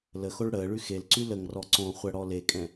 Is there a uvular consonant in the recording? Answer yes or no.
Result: yes